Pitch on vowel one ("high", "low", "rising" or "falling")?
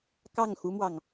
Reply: falling